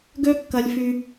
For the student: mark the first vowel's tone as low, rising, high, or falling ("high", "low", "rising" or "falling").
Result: high